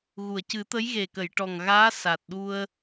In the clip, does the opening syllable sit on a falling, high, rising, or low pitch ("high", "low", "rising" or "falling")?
low